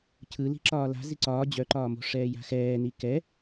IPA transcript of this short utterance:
cʰɯli̤ ǁɒːla̤ ziǀɒː d͡ʑœǃɒːmo̤ ʂɛːja̤xɛːni kɛ

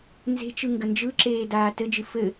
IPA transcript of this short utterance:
nze̤t͡ʃɯ ŋɡənd͡ʒɯǁeː daːtɘd͡ʒɨ fɘ

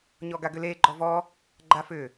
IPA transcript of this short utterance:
ɲɔɡaɡʏle ɡ͡ǃɔvɔ | ɡ͡ǃafʏ

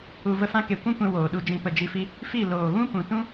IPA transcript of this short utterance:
u˨ və˧fã˧ ke˨ kʷũ˦kʷɛ̃˧ woː˨ɗu˧d͡ʒĩ˦˨pə˦˨ d͡ʒi˧fi˦ | fi˦˨ loː˨ɣũ˦pũ˨tũ˦

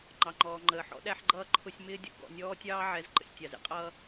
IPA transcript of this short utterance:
ŋ͡ǃɑ˨ŋ͡ǃɔː˨ŋ͡ǃəː˨ ħɔ̰˦ɗæ˦ħɡ͡ǃʌː˦ ǃʰʊ˦sʲ mɪː˦dʲɔ̰˦ɡɔ̰˨ nʲɔː˦tʲɑː˦ʕɛ˨˦z ǃə̰˨sʲtʲɑ˨z ḭ˨qʼʌː˦

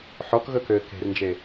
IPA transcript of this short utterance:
ħɔkɣɵkøː ke̤rnd͡ʒe

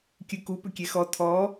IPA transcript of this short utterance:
kʲɯku pʏkʲɛxɔ tʰɔ

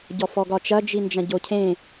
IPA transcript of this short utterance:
ɟɔfɔɡɒt͡ʃɐ d͡ʒind͡ʒɐ̃ɟocʰẽ

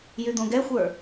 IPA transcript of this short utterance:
jyd̪õɡɛxʷə˞

